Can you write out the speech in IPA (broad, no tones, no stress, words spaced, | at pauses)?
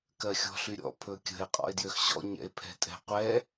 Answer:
kɜxʲɔ̤ɬyɾʲɔ̰ pʰɵkʲə̤e̯ qʼɔ̰e̯djøxɕɔ̰ ɲɛ̰e̯pʰɛ̤tʼɛ̤qʷɛ